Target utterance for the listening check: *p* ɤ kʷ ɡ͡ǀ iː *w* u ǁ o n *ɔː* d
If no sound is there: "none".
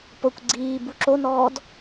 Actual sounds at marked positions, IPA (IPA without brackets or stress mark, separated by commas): p, b, ɔː